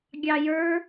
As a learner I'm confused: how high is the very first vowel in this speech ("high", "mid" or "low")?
low